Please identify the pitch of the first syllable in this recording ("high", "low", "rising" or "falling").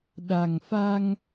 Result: low